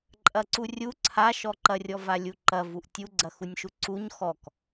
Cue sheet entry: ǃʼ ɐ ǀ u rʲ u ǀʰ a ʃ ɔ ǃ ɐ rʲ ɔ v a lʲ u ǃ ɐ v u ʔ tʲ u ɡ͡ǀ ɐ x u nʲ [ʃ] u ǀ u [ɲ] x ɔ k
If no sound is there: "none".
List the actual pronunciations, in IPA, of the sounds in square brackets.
ʃ, ɲ

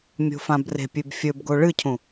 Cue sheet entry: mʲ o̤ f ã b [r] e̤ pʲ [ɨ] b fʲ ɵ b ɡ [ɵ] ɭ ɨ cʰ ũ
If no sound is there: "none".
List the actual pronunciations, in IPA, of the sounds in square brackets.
r, ʉ, o

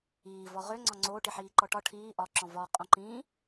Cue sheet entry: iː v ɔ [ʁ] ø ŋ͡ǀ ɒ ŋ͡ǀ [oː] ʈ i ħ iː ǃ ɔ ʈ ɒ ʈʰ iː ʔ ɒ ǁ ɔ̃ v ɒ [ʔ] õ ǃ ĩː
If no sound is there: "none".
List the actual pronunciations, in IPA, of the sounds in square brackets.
ʁ, oː, qʼ

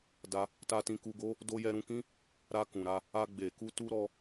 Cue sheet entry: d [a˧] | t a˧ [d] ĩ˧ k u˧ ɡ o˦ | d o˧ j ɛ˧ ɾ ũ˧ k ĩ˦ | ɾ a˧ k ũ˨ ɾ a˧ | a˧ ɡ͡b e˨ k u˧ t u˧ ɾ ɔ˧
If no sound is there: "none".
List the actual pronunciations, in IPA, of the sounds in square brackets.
a˧, t

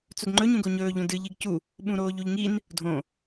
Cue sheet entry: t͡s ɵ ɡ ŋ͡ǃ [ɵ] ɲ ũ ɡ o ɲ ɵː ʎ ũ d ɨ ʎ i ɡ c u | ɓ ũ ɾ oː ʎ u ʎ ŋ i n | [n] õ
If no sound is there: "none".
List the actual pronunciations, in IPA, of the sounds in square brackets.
ɵ, dʱ

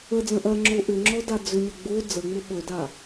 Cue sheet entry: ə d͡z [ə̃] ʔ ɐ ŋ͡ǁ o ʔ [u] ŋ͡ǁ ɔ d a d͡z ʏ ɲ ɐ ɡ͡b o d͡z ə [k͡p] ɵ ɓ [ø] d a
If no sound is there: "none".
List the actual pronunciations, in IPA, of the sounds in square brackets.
ə̃, ʏ, ŋ͡m, ɵ

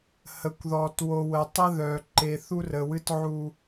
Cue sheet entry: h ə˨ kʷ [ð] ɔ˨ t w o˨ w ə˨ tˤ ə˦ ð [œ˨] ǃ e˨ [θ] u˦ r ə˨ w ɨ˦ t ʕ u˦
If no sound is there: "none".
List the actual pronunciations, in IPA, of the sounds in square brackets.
ð, œ˨, θ

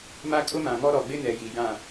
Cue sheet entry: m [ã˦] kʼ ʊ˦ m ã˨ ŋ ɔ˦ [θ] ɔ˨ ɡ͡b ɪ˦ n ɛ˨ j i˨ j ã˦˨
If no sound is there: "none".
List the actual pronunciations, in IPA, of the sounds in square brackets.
a˦, ɾ

